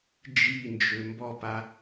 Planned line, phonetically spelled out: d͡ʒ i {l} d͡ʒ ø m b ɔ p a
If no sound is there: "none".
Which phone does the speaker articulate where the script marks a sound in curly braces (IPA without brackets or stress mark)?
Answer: n